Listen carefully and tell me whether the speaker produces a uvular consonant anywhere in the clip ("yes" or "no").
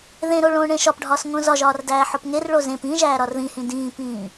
no